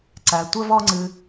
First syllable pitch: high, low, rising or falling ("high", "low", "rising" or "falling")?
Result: low